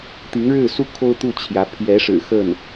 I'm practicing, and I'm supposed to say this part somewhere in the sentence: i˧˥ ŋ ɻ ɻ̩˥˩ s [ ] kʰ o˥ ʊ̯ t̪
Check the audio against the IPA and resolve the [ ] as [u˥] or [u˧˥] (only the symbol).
u˥